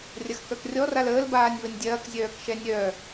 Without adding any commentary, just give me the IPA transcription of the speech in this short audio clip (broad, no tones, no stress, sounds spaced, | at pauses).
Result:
rʲ ɐ x k œ k rʲ ɔ r a l əː l b aː nʲ β ə nʲ dʲ ɐː k zʲ œː k ʃ ɛ nʲ œ